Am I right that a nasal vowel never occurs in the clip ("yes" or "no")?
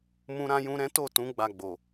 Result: no